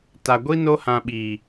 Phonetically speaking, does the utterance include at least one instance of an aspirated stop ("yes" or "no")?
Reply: no